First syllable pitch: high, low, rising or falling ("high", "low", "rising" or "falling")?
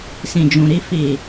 low